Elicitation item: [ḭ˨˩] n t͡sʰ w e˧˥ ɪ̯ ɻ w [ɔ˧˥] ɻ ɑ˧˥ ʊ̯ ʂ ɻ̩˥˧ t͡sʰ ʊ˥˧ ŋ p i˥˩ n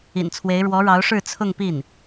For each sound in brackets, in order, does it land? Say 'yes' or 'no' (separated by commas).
yes, yes